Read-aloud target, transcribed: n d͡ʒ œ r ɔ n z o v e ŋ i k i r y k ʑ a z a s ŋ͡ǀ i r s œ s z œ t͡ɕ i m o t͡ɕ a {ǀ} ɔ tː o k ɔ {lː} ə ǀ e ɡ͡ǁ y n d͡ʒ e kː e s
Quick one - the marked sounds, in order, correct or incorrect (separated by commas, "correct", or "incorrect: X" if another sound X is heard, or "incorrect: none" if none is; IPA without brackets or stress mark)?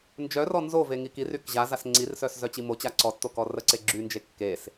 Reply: correct, incorrect: r